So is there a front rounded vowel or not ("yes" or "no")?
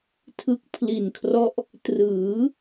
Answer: no